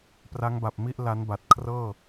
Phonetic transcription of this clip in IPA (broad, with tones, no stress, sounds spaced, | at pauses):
p r a˦˥ ŋ b a˨˩ p̚ m i˥˩ ʔ l a˦˥ n b a˨˩ t̚ kʰ r ɤː˥˩